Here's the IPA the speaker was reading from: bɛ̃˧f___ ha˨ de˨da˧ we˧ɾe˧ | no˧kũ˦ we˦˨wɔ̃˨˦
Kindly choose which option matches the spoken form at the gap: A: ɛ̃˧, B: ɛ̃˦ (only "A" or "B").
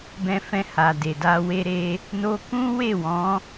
A